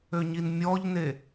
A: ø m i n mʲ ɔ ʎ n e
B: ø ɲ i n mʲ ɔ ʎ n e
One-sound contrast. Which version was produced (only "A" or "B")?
B